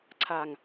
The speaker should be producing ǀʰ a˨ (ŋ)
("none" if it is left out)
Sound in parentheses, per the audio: ŋ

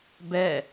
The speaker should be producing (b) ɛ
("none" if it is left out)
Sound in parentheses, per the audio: b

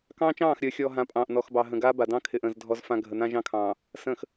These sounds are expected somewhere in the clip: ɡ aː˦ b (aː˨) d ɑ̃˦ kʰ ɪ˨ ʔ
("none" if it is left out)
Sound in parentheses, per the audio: a˨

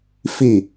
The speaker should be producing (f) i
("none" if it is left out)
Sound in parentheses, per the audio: f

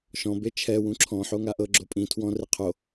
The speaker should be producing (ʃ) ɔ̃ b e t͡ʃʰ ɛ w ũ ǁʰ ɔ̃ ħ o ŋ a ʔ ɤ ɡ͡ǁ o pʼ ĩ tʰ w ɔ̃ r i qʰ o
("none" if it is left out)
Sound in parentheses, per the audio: ʃ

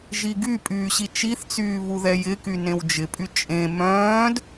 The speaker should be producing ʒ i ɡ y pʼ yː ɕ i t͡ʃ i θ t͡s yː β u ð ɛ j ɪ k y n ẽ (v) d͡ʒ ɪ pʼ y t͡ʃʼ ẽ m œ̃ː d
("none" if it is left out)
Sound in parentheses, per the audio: w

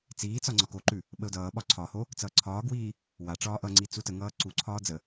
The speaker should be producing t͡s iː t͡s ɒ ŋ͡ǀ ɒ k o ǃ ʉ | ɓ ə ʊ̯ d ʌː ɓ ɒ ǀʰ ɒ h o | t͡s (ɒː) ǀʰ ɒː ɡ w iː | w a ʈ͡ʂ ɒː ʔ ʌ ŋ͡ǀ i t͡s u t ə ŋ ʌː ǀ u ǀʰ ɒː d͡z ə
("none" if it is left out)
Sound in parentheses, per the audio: ʌː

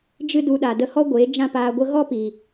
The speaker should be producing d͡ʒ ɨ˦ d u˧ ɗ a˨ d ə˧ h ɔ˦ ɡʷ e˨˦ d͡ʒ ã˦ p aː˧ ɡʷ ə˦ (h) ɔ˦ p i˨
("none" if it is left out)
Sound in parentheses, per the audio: ɣ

